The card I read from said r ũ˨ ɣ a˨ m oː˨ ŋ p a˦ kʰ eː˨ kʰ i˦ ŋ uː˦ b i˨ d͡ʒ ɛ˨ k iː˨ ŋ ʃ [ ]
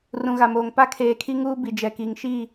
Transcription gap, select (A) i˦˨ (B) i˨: A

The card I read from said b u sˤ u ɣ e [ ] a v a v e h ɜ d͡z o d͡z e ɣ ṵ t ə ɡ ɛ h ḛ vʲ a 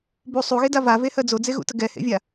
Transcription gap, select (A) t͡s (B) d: B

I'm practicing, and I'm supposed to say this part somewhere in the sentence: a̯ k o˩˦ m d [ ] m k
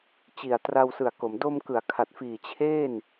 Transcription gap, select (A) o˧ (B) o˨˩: A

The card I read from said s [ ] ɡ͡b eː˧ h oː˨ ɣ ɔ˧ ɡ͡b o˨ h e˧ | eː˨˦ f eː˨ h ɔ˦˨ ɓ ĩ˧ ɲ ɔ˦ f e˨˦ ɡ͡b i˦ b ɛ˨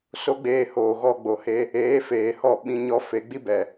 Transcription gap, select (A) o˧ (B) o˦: B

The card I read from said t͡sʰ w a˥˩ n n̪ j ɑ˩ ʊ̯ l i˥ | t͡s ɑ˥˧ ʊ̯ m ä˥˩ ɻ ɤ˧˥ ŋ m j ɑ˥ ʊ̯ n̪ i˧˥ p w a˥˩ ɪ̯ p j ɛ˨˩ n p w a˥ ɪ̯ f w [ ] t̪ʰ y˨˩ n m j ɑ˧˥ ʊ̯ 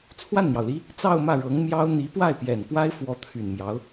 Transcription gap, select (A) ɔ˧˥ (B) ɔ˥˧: A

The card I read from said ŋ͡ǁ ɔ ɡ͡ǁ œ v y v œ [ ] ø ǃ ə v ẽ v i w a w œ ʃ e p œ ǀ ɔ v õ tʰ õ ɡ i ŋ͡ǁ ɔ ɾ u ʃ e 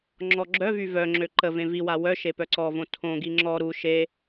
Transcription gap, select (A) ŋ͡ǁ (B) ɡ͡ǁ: A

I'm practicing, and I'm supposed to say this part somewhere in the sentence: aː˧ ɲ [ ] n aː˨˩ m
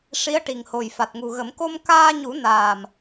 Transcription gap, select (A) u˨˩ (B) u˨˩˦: B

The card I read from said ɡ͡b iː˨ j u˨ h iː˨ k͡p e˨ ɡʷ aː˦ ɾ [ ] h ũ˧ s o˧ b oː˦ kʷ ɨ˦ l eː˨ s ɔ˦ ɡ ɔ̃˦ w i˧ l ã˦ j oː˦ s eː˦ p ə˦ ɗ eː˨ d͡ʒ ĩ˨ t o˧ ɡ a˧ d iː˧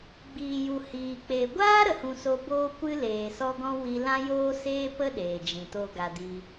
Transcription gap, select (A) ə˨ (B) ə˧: A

